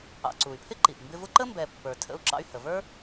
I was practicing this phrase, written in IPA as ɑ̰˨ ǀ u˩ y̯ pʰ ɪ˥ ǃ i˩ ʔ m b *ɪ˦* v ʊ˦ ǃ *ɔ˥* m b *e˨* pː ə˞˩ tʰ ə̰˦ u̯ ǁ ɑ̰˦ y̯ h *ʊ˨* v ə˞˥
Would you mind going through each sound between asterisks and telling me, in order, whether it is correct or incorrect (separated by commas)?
correct, incorrect, incorrect, incorrect